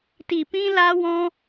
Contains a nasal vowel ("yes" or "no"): yes